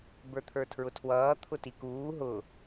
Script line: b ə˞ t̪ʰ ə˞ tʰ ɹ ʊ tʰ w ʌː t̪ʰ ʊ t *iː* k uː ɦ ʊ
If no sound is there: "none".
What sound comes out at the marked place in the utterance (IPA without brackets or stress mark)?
i